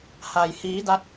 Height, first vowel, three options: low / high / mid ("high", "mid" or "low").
low